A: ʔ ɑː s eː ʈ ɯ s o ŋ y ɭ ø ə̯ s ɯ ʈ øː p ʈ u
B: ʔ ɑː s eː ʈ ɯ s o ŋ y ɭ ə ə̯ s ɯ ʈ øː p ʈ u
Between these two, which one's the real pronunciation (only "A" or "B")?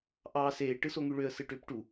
A